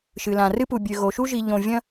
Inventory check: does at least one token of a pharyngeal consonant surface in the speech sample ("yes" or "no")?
no